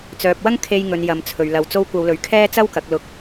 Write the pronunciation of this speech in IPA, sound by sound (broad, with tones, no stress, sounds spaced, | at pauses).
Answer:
t͡s œː˨ p̚ w ɐ˥ ŋ kʰ e˧ j ŋ ɵ˨ n j ɐ˨˧ m t͡sʰ ɵ˨ ɥ l ɐ˨˧ w t͡s o˧ w kʷ ɐ˨˧ w l ɵ˨ ɥ kʰ ɛː˥ t͡s ɐ˥ w k ɐ˨˥ k̚ l ʊ˨ k̚